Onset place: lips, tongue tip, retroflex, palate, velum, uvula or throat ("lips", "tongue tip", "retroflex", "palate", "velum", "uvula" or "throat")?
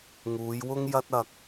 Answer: velum